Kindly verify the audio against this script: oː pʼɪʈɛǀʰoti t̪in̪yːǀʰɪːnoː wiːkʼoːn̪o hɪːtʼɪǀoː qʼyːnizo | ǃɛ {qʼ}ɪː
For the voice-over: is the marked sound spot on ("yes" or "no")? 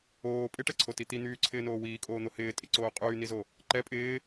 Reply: no